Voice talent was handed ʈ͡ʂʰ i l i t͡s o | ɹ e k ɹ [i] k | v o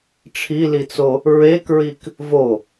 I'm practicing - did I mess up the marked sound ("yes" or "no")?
no